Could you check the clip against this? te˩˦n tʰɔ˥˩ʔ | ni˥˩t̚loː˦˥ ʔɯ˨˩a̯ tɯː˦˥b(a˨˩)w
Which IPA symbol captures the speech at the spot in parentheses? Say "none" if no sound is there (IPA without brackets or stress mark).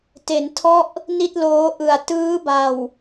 a˨˩